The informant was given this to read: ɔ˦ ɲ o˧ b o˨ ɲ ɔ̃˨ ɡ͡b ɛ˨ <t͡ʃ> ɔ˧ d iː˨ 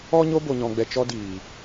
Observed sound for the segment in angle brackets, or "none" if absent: t͡ʃ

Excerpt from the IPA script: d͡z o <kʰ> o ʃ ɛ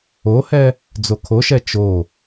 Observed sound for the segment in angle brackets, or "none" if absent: kʰ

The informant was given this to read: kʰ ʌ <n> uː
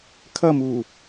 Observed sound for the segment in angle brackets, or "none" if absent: m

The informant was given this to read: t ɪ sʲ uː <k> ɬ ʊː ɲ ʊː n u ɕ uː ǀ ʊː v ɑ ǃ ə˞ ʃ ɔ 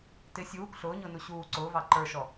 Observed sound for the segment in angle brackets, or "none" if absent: k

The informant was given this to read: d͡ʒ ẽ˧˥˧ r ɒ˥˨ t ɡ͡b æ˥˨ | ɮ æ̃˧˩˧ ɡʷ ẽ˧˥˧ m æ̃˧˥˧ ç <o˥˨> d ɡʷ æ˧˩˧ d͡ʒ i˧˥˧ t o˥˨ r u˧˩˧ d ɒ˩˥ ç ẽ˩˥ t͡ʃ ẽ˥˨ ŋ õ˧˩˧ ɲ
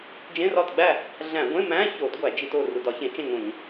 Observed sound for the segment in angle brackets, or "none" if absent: o˧˩˧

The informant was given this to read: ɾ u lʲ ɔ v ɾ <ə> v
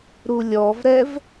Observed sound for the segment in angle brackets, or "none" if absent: ɛ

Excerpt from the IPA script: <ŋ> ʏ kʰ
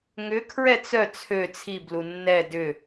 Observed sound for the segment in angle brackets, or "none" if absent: ŋ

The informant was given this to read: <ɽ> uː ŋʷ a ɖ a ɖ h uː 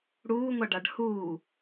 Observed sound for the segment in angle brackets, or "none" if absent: ɽ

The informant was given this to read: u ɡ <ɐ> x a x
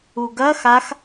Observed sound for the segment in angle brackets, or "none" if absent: ɐ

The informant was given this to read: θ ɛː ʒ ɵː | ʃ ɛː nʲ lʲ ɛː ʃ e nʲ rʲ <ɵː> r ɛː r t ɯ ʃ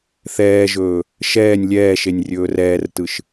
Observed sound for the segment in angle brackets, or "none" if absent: ɵː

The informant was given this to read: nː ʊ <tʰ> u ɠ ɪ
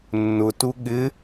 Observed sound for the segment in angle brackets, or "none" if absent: t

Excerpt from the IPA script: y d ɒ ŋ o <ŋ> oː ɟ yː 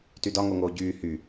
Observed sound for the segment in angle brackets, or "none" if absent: ŋ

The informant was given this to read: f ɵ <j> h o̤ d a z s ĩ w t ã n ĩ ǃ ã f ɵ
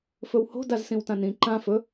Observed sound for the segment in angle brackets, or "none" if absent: w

